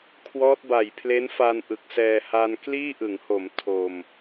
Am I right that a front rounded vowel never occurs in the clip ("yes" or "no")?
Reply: yes